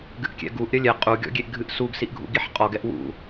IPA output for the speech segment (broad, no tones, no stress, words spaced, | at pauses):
ɡɨʔkʲɛ̰ɡuʔ ɾʲɐlʲɛ qʼu ɡʲɔ̰ɡʲeʔɡʱɨʔsuɡ siʔɡʱṵɡiħqʼɔɡ ɛʔwṵ